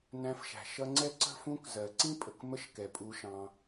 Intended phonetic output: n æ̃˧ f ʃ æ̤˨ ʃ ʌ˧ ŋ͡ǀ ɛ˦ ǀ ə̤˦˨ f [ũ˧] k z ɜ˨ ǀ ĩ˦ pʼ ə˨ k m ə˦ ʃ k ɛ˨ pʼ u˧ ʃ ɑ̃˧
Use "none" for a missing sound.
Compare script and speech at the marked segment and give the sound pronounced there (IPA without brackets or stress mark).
ũ˧